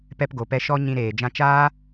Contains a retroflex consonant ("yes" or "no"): no